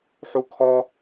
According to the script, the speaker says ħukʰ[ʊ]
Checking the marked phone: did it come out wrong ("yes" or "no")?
yes